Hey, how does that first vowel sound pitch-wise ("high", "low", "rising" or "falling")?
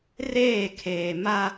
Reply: falling